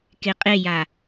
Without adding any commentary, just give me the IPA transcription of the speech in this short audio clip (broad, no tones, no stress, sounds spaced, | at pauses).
k e qʼ e j a